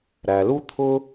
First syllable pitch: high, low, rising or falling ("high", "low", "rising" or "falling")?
low